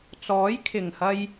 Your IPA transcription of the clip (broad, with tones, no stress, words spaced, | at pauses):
t͡sɔː˨˥jkʰɪ˨˩ŋhɐ˧j